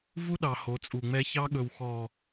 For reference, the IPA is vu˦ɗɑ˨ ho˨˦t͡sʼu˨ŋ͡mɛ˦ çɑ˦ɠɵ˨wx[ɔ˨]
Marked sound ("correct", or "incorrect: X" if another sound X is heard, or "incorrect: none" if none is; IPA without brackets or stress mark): correct